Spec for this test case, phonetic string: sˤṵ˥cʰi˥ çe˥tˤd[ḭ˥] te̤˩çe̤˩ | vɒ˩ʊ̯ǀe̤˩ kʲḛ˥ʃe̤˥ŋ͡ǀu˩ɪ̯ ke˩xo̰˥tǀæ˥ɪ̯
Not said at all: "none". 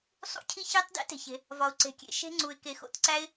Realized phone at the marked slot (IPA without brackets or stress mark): ḭ˥